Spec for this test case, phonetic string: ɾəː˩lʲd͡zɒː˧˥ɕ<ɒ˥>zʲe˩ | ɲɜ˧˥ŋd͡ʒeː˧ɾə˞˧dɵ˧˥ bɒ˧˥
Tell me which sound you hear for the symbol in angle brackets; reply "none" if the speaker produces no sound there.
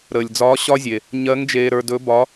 ɒ˥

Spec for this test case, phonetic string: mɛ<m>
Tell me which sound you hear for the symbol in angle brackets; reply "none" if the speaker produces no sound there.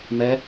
none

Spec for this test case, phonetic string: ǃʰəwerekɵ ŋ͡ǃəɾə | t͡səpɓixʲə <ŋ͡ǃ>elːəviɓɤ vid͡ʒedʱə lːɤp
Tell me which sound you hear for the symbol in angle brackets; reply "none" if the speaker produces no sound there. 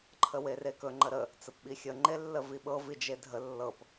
ŋ͡ǃ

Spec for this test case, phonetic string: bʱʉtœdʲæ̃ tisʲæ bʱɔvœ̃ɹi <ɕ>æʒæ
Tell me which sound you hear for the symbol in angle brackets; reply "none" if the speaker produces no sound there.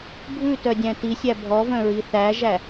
θ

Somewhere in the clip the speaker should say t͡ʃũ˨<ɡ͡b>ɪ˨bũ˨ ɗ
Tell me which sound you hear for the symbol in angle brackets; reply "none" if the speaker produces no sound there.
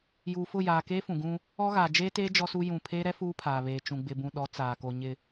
ɡ͡b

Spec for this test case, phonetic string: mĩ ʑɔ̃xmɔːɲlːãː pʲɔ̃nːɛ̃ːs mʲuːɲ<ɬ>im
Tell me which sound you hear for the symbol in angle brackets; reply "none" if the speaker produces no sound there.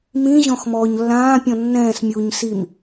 s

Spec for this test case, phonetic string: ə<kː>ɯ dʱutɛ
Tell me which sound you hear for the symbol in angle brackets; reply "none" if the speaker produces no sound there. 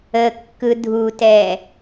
kː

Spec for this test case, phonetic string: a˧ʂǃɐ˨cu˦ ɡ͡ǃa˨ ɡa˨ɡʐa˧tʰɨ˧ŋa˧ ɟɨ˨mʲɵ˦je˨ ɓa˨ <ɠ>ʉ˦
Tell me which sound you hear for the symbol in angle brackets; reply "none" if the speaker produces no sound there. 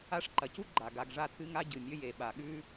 ɠ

